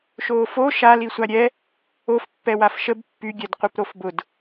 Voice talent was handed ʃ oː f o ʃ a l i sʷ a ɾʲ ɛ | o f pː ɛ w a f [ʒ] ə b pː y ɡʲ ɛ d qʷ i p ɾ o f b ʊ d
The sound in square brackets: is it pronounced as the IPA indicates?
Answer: no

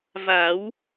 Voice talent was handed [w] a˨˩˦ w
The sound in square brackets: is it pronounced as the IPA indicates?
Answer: no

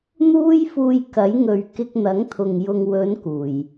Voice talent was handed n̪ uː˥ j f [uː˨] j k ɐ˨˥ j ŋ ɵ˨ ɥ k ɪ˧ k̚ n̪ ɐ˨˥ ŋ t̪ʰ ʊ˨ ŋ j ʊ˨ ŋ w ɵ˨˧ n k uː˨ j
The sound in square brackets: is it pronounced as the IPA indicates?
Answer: no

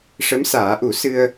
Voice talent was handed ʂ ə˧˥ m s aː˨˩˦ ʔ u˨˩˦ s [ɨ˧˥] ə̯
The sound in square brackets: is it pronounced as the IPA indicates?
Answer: no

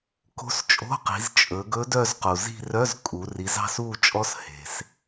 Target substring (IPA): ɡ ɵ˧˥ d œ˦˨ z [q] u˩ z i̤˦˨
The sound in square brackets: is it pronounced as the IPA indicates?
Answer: yes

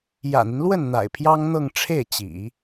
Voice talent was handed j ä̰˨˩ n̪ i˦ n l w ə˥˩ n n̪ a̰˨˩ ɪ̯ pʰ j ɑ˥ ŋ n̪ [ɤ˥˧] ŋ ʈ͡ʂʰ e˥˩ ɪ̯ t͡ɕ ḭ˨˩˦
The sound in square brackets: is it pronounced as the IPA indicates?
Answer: yes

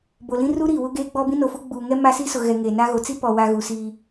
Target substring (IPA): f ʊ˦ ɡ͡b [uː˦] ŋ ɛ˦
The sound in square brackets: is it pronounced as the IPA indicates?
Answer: no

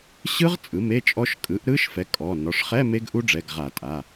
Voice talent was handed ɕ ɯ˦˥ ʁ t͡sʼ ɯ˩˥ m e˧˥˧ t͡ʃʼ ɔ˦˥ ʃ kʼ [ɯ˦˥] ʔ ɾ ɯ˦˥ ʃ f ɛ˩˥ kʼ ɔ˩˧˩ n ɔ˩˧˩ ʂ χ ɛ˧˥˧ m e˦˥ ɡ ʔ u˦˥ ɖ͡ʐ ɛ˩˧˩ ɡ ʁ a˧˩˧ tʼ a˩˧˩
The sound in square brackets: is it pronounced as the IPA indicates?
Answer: no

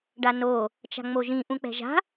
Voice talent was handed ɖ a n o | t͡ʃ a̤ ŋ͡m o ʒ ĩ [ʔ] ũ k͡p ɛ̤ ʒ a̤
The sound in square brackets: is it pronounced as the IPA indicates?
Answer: yes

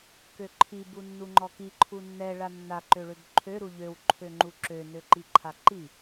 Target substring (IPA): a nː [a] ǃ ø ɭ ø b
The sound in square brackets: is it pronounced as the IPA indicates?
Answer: yes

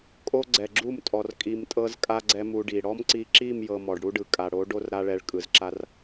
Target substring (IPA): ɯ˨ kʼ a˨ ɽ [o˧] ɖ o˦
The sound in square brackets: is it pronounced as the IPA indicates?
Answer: no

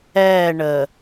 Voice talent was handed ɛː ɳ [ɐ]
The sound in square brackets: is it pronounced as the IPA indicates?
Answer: no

